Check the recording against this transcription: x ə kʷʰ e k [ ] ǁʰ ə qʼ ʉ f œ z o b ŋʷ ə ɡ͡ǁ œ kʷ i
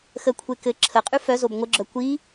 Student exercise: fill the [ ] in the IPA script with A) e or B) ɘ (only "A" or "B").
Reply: B